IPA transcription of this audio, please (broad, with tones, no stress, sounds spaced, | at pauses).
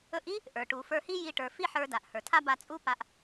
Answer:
ɵ˧ ʔ i˥ | ʔ ə˞˩ ʈ u˩ f ə˞˧ h i˥ j i˧ ʈ ə˞˩ f i˥ ħ ə˞˧ d a˩ ʔ h ə˞˩ tʰ a˥ b a˧ t͡sʼ u˥ p a˧ ʔ